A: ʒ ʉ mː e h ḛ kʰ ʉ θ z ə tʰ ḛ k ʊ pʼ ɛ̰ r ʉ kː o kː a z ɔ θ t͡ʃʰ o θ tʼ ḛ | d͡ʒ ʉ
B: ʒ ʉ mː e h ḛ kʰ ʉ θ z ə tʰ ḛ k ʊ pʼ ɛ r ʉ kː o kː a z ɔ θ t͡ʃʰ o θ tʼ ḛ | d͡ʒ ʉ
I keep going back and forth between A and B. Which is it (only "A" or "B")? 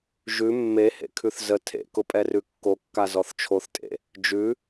B